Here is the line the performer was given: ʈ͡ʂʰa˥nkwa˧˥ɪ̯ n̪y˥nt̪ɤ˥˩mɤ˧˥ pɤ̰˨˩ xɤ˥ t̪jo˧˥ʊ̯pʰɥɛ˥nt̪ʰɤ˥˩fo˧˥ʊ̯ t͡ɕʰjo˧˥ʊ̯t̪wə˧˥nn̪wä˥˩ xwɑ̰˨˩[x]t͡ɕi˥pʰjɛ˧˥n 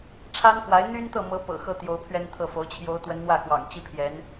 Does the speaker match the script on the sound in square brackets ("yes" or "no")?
no